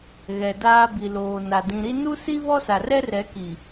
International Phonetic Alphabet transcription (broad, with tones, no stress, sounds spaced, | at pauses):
ɣ ɛ˨ d aː˦ b i˨ l oː˨ n a˨ d ĩ˨ ɾ i˦ n u˦ s i˦ β ɔ˦ s a˨ r ɛ˦ r ɛ˨˦ k i˨